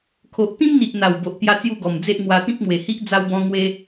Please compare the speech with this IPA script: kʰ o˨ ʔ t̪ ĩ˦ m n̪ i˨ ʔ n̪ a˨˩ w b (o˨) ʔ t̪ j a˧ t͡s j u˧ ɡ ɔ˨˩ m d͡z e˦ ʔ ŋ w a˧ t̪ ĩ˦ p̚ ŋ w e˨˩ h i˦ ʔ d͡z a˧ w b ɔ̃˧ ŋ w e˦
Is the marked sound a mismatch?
no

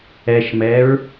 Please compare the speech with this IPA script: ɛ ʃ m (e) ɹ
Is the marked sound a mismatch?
yes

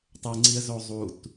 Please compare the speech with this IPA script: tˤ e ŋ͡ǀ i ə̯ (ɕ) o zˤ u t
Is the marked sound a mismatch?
yes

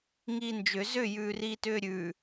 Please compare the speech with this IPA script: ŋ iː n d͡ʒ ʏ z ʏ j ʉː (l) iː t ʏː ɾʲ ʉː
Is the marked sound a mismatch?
yes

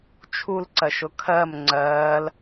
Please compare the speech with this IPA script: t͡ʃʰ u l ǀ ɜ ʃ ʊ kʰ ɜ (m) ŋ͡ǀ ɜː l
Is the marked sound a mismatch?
no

